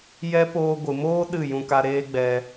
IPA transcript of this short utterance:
jɛ˦ poː˧ɡʷɨ˨moː˦ ɗɨ˦˨ jũ˧ka˧ ɾeː˦ɡ͡bɛ˧

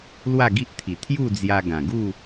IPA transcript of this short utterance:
lwa˥˧ɡi˦ʔt̪ʰi˨˩ t̪ʰju˥˧d͡zja˧ɡã˨˩ ɡu˥˧

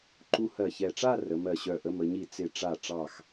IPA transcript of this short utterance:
ǃu˧hɜ˧˩çɛ˧˩ʈ͡ʂa˥˧ rə˩˧mɜ˧˩ɕœ˧˩ ʔə˧mə˩˧ɲi˧˩ t͡sɪ˧˩ʈ͡ʂa˧˩ ʈ͡ʂɑ˧˩x

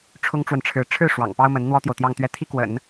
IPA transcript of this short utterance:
ʈ͡ʂʰʊ˥ŋʈ͡ʂwə˨nʈ͡ʂʰɻ̩˧˥ ʈ͡ʂʰɻ̩˥˩ ʂwɑ̰˨˩ŋ pɑ˥ʊ̯mə˧˥n n̪wɔ˥t̪jo˨ʊ̯t̪jɑ˥˧ŋt̪ɥɛ˥˩ t̪ʰi˥ kwə̰˨˩˦n

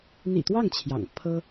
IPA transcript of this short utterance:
n̪ḭ˨˩t̪wɑ˥˩ŋ t͡ɕʰjɑ̰˨˩ŋ pʰɤ˥

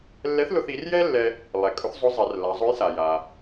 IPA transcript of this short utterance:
lːɛ˧˥θlʊ˧θi˩˧rjɛ˥ lːɛ˧ | lˠɛ˩kʼʊ˧˥θzˤʊ˧˥ zˤɛ˩˧rla˩˧ zˤʊ˧˥jsa˩ ja˩

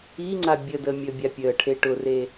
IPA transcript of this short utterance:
iŋ͡ǀa bʲədəː mʲəːbʲapʲəː ʈʰeʈʊre

